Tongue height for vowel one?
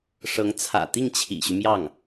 mid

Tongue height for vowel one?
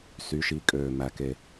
high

